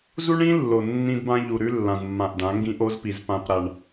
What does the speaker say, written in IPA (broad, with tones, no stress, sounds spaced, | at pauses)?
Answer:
z u˦ ɳ ĩ˦ lː o˨ nː ĩ˦ d b ã˦ ʎ u˨ ɾ ʉ˦ lː ã˨ z mː ã˨ ʔ d ã˨˦ ŋ ɡ ĩ˦ ʔ o˦ z p i˨ z p ã˦ p ɾ a˦ ɳ